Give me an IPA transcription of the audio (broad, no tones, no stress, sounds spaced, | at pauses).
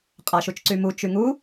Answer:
qʼ a ʃ u t͡ʃ ǀ y m u t͡ʃ y ŋ u